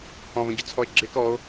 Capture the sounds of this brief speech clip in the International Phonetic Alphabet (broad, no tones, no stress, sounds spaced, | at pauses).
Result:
h ɔ̃ v ə̃ ɟ ʊ t͡sʰ ɔ e̯ ɡ͡ǁ ɪ k ɔ o̯